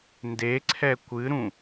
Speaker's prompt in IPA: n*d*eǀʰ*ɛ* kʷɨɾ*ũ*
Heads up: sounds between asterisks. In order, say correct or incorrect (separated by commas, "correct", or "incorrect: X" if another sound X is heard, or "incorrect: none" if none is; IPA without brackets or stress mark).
correct, correct, correct